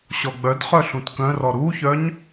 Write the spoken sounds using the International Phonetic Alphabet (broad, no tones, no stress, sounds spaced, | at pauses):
ɕ ɔ ɡ͡b œ d χ œ ɬ ũ t k œ̃ r ɔ ɾ u ç œ ɲ